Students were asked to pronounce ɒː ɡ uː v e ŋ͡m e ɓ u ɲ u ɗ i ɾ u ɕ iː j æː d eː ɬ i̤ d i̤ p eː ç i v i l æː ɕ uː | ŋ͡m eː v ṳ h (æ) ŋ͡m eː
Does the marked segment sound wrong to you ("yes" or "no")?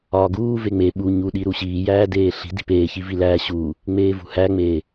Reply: no